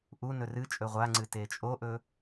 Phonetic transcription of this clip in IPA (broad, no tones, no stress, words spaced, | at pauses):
ʔu nɵrɨt͡ʃʼɵ ʁʷaŋ͡ǀɨ tet͡ʃʼoʔɵ